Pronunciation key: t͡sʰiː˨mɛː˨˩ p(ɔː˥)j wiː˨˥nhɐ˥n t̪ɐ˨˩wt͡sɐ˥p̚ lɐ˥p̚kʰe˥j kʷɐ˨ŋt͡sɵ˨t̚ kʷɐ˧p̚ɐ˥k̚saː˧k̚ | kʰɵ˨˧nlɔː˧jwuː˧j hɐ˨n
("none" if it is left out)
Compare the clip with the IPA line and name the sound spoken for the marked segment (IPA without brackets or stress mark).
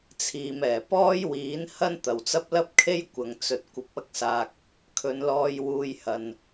ɔː˥